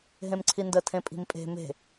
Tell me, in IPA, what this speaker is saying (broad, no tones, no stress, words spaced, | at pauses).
ɦẽmǀʰində tʰẽpʼi̤mpʼe̤ me̤